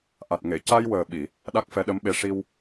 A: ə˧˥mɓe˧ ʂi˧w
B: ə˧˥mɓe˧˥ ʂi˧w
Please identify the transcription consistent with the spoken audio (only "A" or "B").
B